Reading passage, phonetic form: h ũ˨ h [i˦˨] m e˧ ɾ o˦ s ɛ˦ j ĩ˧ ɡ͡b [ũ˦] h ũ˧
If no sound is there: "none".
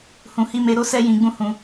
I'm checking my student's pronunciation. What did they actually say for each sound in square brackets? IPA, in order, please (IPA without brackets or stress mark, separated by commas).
i˧, ũ˦